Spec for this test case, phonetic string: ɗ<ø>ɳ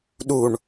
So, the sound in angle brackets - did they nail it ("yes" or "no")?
no